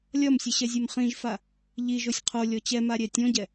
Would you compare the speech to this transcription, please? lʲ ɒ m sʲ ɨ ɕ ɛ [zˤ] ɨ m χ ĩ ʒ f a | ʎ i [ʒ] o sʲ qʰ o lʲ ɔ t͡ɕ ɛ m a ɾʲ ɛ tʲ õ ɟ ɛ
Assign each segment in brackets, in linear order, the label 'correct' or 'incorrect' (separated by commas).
incorrect, correct